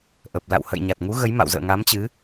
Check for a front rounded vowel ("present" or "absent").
absent